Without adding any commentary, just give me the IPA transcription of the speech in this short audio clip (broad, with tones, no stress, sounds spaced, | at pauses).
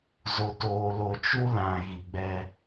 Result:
z o˨ t oː˨ l o˨ t͡ʃ u˦ l ã˨ ɣ i˨ ɡ͡b ɛ˦